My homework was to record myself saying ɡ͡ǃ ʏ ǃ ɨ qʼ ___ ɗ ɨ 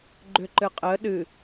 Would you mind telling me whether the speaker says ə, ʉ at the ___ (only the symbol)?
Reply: ə